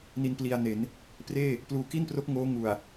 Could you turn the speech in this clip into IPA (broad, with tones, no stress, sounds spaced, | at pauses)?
n i˧ n p l i˧ a̯ n e˩˦ n | p r eː˥˩ | p l uː˨˩ k i˥˩ n p r o˦˥ k̚ ŋ oː˦˥ ŋ u˨˩ a̯